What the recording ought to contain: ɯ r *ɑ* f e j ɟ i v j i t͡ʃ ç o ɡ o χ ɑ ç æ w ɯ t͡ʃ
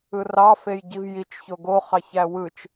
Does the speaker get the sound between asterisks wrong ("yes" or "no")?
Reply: no